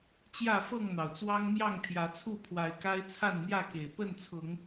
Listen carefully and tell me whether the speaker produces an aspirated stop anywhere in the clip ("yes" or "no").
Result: yes